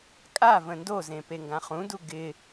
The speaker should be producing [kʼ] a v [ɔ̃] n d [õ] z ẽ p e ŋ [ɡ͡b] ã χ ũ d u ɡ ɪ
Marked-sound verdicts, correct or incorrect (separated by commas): correct, incorrect, incorrect, incorrect